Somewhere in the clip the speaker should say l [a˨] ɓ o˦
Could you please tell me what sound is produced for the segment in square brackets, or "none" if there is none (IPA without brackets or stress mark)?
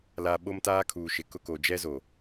a˨